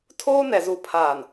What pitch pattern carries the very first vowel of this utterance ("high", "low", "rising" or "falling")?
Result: high